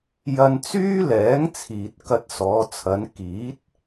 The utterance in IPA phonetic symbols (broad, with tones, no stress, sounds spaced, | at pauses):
j ɐ˧ n t͡s yː˥ l ɛː˨˥ ŋ t͡sʰ iː˨ t̚ k ɐ˧ t̚ s ɔː˨˧ t͡sʰ ɐ˨˧ n k iː˨˥ t̚